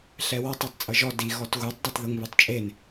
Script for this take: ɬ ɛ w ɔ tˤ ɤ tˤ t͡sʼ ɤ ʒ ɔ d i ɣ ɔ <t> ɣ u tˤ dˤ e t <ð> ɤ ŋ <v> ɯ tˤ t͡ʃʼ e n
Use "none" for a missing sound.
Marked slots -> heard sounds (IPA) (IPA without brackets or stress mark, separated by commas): t, ð, β